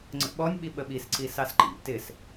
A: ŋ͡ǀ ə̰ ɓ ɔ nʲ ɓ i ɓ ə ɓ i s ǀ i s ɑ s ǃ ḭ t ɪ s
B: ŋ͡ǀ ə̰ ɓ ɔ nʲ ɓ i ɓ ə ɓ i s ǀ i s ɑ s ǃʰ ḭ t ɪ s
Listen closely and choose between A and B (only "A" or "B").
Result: A